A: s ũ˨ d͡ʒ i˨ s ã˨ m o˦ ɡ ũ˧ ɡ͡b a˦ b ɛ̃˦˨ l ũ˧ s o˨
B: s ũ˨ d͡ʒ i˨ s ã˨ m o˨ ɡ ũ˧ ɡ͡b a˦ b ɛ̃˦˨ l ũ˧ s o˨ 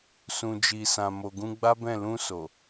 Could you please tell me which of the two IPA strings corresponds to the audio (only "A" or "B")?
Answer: B